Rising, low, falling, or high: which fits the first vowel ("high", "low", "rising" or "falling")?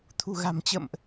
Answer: low